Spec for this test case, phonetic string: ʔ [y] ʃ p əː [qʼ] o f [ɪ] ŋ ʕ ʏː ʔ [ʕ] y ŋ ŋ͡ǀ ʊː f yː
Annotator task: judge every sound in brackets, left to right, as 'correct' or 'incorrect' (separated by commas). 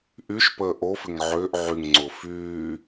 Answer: correct, incorrect, correct, correct